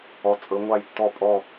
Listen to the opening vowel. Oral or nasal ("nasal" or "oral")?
oral